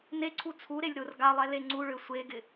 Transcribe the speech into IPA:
n e ǀʰ u t͡sʰ u ɾ e lʲ ɾ ʊ r ɡ a lˠ ɛ l e ŋ͡ǀ u ɭ ø sʷ e ɡ ɪ

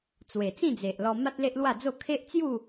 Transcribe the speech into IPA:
t͡s w e˨˩ t͡s ĩ˥˧ d͡z e˨ ʔ l ɔ˧ m a˦ t̚ l e˦ ʔ l w a˥˧ d͡z o˥˧ kʰ e˦ ʔ t͡s j u˥˧

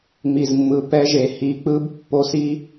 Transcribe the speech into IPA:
m i˨ z mː ɯ˨ p ɛ˦ ʒ e˨ h i˨˦ k͡p ɯ˦ b pː o˦ s i˦

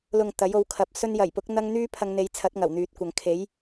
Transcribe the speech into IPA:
l ʊ˨ ŋ t̪ ɐ˨˥ j o˨˧ w kʰ ɐ˨ p̚ s ɵ˧ n j ɐ˨˩ j p ʊ˨˥ k̚ n̪ ɐ˥ ŋ n̪ yː˥ pʰ ɐ˧ ŋ n̪ e˨˧ j t͡sʰ ɐ˨˥ t̚ ŋ ɐ˨˩ w n̪ yː˨ t̚ kʷ ɐ˨ ŋ kʰ e˨˥ j

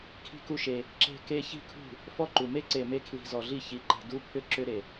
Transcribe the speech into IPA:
kʰ i̤˦ k u˦ ʃ e˧ | ǁ e̤˧ k e˧ ç i̤˦ kʰ ṳ˦˨ | f ɔ˦ ǃ u˨ m e˦ ǀ e˨ m e˧ kʰ l i̤˨ z ɔ˨ ɮ i˦˨ ç i˨˦ ǃ e̤˨ d u˦ pʰ ʏ˦ ǁ ʏ˦ ɾ e˨

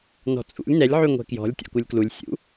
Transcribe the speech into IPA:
n ɔ̤ t͡sʼ ṵ lʲ n ɛ lʲ ʕ y ŋʷ ɛ̤ k j ɔ̤ lʲ tʲ ɔ̰ k u lʲ k l u lʲ sʲ ṵ

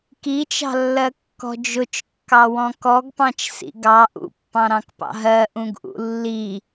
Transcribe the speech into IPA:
k i t͡ʃ ɑ̤ lː ɜ kː ɔ̤ d͡ʒ ʊ t͡ʃ kː ɑ w ɔ̃ k ɔ ɡ p ɑ̃ t͡ʃ s ḭ ɡ ɑ ʔ ṵ pː ɑ̃ ɾ ɑ̃ k p ɑ̰ ɦ ɜ ʔ ũ ɡ ʔ ṵ lː i

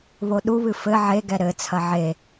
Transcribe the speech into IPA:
β o ɗ u β ɨ f ɘ ʕ e ɡ ɛ ɾ ɘ t͡sʰ ɐ ʕ e

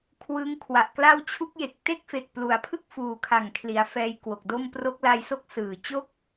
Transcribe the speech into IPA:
kʰ w ɯ˦˥ ŋ kʰ w a˨˩ ʔ k l a˥˩ w t͡ɕʰ u˦˥ k̚ j e˨˩ k̚ t e˥˩ k̚ f e˨˩ k̚ p l u˩˦ a̯ pʰ ɯ˥˩ k̚ f uː˨˩ kʰ a˨˩ ŋ kʰ l i˩˦ a̯ f ɛː˧ j k w o˨˩ k̚ d o˥˩ m p r o˦˥ k̚ l a˧ j s o˥˩ k̚ s ɯː˨˩ t͡ɕ o˥˩ k̚

